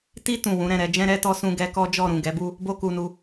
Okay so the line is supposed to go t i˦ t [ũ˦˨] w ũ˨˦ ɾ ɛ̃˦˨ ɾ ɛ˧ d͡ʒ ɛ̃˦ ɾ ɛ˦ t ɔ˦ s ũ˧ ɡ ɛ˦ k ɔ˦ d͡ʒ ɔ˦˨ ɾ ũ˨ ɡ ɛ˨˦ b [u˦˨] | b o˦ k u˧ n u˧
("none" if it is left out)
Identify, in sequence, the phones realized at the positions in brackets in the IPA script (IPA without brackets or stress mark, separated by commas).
ũ˦˨, u˦